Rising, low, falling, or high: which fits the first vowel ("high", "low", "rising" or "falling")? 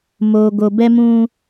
low